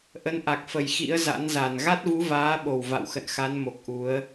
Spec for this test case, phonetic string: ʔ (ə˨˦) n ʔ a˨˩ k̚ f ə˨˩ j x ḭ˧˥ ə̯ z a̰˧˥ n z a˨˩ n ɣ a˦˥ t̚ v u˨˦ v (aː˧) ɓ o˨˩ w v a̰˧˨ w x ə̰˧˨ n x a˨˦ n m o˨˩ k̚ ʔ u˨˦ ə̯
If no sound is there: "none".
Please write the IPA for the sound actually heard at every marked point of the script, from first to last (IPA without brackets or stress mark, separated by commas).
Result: ə˨˦, aː˨˦